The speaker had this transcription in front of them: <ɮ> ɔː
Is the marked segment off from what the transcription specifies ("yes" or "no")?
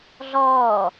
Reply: no